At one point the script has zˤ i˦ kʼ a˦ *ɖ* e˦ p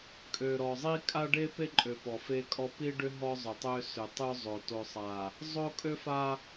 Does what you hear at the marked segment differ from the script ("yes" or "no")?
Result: no